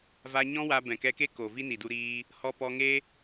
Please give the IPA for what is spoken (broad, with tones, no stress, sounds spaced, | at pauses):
v a˧ ɲ ɔ̃˦ w a˧ b ɛ̃˨ k ɛ˧ k e˦ k o˨ v i˦ n i˨ d u˧ ɾ iː˧ | h ɔ˧ p ɔ˧ ŋ e˦